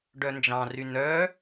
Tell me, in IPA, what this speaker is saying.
ɖ œ n d͡ʒ ɑ̃ r y n œ

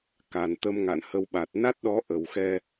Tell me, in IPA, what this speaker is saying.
k a˨˩ n t̪ ə˧ m ŋ a̰˧˨ n h ə˧ w ɓ a˨˩ t̚ n a˦˥ t̚ ɗ ɔ˨˦ ʔ ə˨˩ w x ɛ˧

